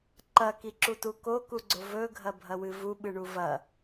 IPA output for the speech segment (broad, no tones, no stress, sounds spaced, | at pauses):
ǃ ɐ k i ǁ u t u k o k u ɡ͡ǀ o v ɵ ɡʱ ɐ bʱ ɐ w ɨ v u ɓ ɨ ɳ u v ɐ